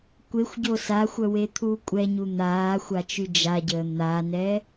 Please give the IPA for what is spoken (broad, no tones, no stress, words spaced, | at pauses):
kʷexʷɟo saxʷœwet̪ʰuː kʷʼɛɲu n̪aːxʷat͡ʃy d͡ʒaɟəː n̪anɛ